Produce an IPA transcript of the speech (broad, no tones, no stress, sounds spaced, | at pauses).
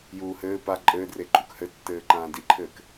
j uː h ɘː p a ǃʼ ɘː d r e ǃʼ u k h ɘ tː ɘː ǃ ãː d i ǃʰ ɘː k